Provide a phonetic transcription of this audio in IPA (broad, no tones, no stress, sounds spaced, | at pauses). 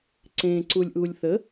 ǀ ẽ ǀ u lʲ ʔ uː lʲ θ ə